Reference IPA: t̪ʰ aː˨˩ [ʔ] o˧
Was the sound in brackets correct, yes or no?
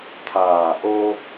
yes